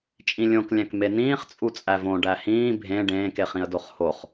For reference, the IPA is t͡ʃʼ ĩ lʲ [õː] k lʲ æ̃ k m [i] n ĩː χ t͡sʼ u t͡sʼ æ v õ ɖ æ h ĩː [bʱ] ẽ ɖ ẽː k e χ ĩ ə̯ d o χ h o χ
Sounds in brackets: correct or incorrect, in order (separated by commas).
incorrect, incorrect, correct